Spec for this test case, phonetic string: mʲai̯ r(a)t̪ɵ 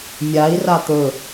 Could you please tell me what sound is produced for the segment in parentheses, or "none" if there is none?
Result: a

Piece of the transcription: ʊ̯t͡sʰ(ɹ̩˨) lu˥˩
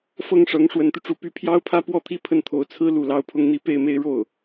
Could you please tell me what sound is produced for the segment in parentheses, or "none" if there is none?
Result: ɹ̩˥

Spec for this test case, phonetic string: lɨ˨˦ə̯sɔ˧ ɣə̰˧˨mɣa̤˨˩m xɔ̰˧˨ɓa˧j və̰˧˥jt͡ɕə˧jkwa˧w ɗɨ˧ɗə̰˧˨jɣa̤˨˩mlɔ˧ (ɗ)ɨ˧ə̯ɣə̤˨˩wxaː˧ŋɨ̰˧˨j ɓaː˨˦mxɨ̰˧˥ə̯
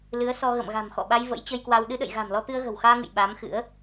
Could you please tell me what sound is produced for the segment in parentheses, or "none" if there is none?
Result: t̪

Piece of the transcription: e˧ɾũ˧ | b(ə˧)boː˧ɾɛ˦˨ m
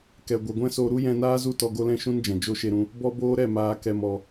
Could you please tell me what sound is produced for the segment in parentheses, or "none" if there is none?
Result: ɔ˧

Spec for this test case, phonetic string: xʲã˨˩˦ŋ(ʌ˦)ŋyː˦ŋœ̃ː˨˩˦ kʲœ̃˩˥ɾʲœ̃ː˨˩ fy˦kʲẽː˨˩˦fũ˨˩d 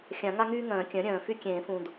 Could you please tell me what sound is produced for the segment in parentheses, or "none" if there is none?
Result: a˦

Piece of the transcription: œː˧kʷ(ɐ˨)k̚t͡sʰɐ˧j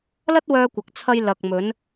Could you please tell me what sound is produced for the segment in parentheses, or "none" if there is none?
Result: ɐ˨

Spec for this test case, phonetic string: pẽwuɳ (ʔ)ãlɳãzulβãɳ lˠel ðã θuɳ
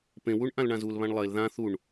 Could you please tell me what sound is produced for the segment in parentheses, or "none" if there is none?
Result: ʔ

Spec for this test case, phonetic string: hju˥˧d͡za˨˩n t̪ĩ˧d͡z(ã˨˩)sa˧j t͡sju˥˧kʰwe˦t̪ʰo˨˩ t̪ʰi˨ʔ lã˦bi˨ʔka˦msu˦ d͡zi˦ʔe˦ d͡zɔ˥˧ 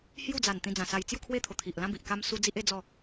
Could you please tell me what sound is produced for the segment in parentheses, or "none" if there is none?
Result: ã˨˩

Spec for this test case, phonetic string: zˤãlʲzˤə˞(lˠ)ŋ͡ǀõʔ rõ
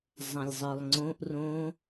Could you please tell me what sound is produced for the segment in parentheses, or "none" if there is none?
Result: lˠ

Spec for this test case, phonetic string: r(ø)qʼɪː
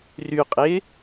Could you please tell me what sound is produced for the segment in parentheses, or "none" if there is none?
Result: y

